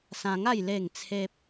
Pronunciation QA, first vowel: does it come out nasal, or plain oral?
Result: nasal